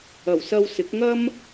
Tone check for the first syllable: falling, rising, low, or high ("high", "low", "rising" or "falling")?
low